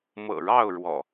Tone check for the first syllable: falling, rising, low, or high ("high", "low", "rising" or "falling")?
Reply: low